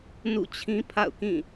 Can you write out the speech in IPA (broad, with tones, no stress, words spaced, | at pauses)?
nṵ˦˨t͡ɕʰĩ˦ pʰa̰˦˨ʊ̯kĩ˦˨